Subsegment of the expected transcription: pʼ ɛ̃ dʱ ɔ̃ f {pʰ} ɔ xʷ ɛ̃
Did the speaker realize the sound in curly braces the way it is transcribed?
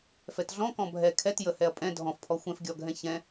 yes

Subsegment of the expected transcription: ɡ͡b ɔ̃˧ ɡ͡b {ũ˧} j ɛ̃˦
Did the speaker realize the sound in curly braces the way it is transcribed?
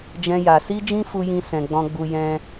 no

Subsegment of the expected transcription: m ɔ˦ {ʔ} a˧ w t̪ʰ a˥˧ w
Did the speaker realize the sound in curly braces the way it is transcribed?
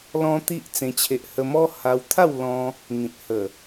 no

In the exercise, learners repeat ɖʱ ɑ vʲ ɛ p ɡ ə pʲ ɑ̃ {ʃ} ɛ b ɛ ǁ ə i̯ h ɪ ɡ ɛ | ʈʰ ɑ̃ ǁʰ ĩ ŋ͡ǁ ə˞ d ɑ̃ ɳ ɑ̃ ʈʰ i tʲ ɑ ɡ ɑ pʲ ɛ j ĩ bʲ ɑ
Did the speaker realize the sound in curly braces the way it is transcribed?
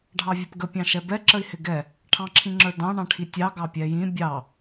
yes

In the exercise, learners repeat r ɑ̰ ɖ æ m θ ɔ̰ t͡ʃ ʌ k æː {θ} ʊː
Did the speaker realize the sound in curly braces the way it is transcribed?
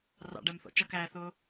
yes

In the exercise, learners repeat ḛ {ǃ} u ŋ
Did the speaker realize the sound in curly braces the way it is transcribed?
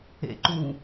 yes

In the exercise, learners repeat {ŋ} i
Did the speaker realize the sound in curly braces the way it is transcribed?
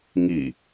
yes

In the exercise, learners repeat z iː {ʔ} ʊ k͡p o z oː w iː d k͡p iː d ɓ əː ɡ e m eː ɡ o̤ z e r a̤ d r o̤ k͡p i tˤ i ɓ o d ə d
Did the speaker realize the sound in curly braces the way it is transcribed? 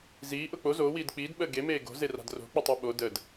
yes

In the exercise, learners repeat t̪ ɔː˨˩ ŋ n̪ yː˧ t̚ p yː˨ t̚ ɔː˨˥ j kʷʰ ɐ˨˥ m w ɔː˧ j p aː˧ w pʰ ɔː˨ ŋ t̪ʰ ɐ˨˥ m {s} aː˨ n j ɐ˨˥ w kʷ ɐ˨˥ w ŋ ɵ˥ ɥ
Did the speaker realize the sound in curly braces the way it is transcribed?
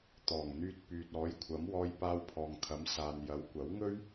yes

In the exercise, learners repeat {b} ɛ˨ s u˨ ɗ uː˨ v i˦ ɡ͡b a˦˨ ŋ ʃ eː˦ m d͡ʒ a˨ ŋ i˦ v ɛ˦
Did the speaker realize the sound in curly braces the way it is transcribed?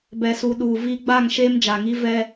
yes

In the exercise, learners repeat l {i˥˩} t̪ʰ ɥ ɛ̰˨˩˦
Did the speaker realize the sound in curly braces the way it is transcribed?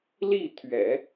yes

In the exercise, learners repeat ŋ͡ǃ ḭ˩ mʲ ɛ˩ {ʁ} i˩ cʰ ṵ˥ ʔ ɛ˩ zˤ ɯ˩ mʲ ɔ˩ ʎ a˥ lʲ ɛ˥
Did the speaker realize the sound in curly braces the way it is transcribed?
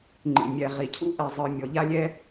yes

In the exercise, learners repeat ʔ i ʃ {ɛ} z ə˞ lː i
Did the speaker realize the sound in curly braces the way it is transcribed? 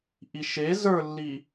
no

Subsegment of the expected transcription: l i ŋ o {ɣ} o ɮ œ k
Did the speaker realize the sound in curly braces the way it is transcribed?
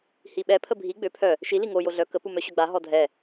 no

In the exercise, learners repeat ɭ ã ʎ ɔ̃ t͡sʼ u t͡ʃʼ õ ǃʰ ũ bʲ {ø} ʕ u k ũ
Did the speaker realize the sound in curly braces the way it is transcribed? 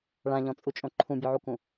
no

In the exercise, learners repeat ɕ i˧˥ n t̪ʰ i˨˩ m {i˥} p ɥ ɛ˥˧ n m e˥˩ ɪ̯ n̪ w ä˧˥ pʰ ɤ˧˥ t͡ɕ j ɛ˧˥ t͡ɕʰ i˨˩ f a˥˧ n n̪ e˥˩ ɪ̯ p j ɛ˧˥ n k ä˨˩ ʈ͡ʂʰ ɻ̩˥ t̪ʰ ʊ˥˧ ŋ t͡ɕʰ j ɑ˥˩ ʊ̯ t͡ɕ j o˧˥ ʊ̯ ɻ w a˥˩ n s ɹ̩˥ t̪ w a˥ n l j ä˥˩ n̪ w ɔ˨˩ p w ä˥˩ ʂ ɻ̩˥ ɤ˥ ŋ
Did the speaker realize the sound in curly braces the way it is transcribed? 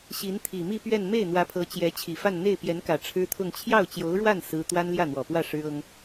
no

